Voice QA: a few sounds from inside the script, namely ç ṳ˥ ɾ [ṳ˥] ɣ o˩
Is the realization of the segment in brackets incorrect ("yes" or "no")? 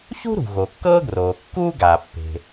yes